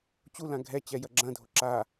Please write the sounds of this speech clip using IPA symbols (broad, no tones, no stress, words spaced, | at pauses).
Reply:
t͡ɕulã ɡʱɛ t͡ɕɛjɐɡ͡ǁɐ̃dʱo ǁa